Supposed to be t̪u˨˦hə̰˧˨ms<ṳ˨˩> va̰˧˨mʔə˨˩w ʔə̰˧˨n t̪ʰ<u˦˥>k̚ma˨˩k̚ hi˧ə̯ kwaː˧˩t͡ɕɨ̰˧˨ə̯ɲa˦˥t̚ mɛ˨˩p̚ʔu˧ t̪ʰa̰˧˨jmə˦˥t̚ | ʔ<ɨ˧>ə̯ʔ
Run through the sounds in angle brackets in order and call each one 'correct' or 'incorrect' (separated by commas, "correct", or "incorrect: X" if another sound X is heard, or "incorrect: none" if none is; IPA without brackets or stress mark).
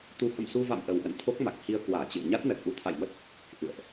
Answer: incorrect: u˧, incorrect: o˦˥, incorrect: ɨ̰˧˨